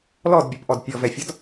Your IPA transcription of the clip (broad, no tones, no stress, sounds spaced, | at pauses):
l ɔ d bʲ ʌ p ʔ ɔ d pʲ ɔ v ɛ fʲ ɒ d